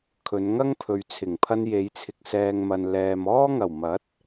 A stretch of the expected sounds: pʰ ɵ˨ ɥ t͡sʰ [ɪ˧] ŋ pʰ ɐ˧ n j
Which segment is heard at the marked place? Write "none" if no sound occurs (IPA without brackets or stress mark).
ɪ˨˩